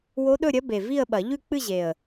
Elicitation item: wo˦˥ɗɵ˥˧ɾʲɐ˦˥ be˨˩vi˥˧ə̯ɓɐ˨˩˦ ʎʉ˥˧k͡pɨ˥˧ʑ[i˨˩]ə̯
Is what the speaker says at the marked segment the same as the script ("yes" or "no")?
no